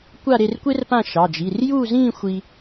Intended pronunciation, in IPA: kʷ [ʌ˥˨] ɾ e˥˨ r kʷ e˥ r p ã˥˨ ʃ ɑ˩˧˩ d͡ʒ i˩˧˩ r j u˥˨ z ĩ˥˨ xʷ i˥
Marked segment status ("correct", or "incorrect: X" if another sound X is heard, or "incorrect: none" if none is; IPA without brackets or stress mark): incorrect: a˥˨